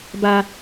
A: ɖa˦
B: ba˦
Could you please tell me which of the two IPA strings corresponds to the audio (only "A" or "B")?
B